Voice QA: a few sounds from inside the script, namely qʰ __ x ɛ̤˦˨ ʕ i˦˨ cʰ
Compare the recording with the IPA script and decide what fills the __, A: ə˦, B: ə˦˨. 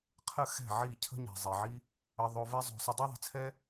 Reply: B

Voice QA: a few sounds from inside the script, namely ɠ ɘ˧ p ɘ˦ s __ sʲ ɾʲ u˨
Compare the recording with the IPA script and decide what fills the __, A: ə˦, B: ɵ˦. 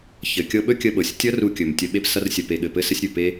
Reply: A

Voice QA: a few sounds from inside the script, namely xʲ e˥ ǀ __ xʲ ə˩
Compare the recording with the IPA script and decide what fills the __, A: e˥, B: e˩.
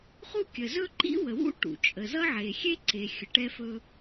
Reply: B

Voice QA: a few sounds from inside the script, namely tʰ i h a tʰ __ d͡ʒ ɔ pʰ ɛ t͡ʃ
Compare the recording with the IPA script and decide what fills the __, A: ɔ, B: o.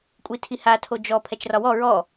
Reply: B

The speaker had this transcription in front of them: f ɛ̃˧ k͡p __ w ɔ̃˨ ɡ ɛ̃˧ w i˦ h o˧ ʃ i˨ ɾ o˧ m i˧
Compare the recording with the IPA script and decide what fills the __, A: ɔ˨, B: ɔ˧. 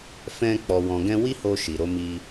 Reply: A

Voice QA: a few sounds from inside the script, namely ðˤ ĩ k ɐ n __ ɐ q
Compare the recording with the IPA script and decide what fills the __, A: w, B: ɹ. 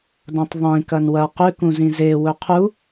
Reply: A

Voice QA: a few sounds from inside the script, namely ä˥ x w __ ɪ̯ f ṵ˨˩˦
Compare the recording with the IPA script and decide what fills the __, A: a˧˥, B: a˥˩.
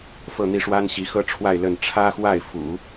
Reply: B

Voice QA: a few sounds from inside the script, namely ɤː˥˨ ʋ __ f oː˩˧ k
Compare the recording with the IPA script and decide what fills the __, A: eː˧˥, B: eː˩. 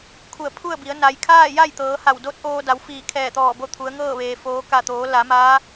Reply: B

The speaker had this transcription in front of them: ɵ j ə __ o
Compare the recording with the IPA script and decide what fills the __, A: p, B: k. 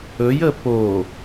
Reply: A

